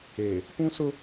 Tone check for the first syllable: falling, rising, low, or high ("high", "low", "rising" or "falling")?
low